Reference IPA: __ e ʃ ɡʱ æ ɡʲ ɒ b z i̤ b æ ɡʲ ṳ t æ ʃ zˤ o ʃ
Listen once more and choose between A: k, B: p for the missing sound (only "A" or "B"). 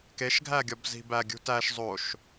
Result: A